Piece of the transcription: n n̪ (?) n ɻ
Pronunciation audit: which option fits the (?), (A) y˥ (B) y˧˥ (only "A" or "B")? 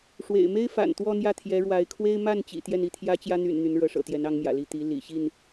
B